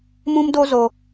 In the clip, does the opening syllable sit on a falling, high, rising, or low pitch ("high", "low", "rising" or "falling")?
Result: high